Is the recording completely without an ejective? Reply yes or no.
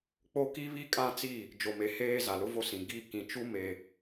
no